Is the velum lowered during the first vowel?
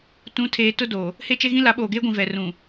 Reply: yes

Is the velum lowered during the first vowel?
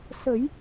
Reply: no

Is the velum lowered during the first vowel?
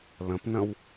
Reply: yes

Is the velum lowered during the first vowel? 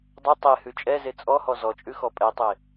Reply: no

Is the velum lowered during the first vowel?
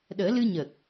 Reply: no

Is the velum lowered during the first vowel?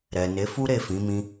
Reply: no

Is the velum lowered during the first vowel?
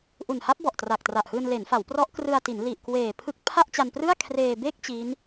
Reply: no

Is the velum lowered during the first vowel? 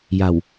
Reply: no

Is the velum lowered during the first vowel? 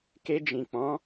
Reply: no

